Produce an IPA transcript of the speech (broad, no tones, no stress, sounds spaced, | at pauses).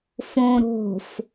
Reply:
f õ ɾ o̤ f